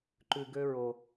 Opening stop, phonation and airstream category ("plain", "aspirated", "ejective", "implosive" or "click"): click